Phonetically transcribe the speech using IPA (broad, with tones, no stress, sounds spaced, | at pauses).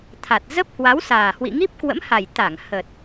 t̪ʰ a˨˩ t̚ z ə˦˥ p̚ h w a˨˦ w s aː˨˩ h w ḭ˧˨ ŋ i˦˥ p̚ k w ə̰˧˥ m h a˨˩ j t̪ a˧˩ ŋ h ə˨˩ t̚